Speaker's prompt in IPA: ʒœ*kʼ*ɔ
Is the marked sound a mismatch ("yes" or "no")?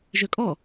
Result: no